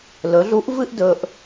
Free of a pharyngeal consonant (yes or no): yes